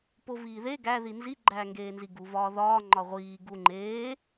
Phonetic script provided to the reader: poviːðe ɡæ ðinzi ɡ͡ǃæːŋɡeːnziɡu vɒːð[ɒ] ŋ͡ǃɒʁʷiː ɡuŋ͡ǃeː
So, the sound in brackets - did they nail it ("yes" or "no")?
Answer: no